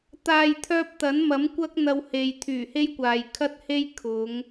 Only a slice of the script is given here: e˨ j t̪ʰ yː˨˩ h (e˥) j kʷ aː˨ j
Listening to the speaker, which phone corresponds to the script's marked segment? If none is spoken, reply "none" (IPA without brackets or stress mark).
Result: e˥